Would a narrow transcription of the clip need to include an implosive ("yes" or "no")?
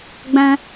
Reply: no